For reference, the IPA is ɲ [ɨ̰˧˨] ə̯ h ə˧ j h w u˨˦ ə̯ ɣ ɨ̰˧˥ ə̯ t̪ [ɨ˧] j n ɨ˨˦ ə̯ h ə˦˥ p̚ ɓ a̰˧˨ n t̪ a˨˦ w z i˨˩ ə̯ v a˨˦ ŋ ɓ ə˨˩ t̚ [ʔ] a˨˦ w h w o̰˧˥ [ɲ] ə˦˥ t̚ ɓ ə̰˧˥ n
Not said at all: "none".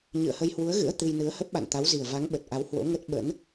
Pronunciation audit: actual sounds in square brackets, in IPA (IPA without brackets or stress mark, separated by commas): ɨ̰˧˨, ɨ˧, ʔ, ŋ